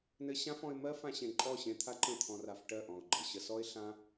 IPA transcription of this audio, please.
n ɘ˧ ɕ ã˦ f ɔ̃˧ ɪ̯ m ɜ˦ f ã˧ ɕ ẽ˨ ǃʼ ɔ˦˨ ɕ ẽ˧ t̪ʰ a˦ ǃ ə̃˦˨ t̪ʰ ɔ̃˧ r a˧ f ʈ ɜ˦˨ ʔ ɔ̃˨ ʊ̯ ɡ͡ǃ ə˨ ɕ ə˧ s ɔ˦ ɪ̯ ɬ ã˦

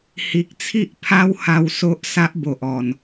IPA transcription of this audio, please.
h i˨ k̚ t͡sʰ i˦ ʔ pʰ a˦ w h a˧ w s o˦ ʔ s a˦ ʔ b o˨ ʔ ɔ˨˩ n

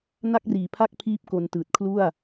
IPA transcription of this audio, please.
n a˥˩ k̚ r iː˨˩ pʰ a˥˩ k̚ pʰ iː˦˥ p̚ k o˧ n t ɯː˨˩ t̚ kʰ l u˥˩ a̯

